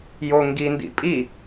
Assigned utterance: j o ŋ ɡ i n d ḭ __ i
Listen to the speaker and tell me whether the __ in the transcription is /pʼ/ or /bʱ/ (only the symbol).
pʼ